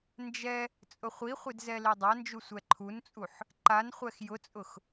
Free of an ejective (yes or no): no